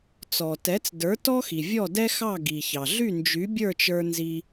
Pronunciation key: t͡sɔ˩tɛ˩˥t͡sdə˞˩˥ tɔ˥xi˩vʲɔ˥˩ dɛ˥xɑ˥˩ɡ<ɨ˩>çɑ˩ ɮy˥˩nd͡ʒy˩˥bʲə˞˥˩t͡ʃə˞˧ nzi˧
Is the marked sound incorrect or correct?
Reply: incorrect: i˩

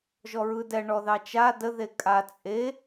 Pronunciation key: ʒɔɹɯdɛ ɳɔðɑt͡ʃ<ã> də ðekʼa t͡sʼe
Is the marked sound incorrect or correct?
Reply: incorrect: a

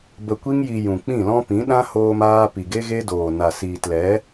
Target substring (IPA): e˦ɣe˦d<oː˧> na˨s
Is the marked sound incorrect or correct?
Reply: incorrect: oː˨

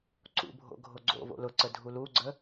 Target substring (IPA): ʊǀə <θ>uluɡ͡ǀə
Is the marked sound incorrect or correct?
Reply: incorrect: dʱ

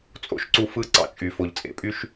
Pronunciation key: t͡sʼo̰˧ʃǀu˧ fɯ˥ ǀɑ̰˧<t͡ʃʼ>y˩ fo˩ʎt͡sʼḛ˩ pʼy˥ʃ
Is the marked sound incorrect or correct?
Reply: correct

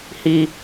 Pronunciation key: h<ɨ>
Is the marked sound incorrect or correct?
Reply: incorrect: i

